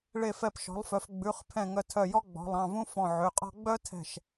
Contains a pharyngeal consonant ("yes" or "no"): yes